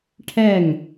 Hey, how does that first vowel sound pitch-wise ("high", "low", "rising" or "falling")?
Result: falling